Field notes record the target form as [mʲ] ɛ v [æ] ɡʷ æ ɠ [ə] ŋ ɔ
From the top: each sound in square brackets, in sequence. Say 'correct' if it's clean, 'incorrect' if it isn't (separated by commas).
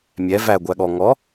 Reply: correct, correct, incorrect